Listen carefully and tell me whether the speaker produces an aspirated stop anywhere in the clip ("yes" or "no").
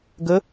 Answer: no